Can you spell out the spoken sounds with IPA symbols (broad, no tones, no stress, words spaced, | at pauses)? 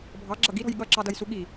bʱɑɡ͡ǁʌ ɡiɾɔ̤j ɠʌǁɑdʌjsu ɠi